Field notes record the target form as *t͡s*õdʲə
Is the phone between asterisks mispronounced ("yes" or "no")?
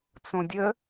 no